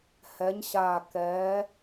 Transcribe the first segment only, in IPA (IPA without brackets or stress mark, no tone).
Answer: h